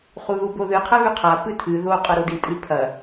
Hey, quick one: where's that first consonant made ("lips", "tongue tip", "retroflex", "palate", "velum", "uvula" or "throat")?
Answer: uvula